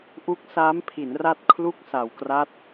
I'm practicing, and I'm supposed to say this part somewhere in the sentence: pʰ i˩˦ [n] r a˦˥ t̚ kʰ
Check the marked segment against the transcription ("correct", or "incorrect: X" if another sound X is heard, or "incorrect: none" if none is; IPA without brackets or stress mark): correct